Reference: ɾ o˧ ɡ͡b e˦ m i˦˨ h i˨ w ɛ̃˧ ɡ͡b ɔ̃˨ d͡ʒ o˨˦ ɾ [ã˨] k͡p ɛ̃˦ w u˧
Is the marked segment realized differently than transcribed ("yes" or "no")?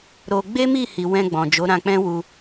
yes